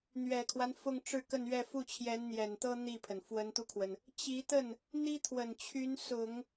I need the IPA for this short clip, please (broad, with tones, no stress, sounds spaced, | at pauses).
n̪ ɥ ɛ˨˩ kʰ w a˦ n f ʊ˥˧ ŋ ʈ͡ʂ ɻ̩˥˧ k ə˥˧ n ɥ ɛ˥˧ f u˥˩ t͡ɕʰ j ɛ˧˥ n n̪ j ɛ˨˩ n t̪ ɤ˥ n̪ i˥˩ pʰ ə˩ n f w ə˧˥ n t̪ u˧ kʰ w ə˩ n | t͡ɕ i˧˥ t̪ ə˥˩ n | n̪ i˥ t̪ʰ w ə˨˩ n t͡ɕʰ y˧˥ n s ʊ˨˩˦ ŋ